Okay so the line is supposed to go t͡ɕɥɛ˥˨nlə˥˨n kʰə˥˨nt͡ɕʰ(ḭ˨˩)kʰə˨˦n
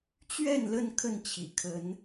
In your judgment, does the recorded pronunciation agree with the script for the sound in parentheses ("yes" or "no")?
yes